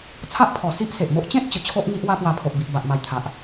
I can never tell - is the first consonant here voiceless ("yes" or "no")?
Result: yes